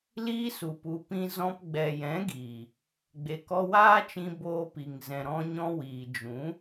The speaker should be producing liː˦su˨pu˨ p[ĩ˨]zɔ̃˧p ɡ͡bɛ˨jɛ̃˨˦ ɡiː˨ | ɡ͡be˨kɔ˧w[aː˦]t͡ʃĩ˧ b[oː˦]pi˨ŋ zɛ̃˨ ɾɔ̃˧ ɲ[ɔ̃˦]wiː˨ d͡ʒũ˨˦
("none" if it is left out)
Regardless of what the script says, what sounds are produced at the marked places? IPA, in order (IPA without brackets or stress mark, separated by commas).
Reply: ĩ˧, aː˦, oː˧, ɔ̃˦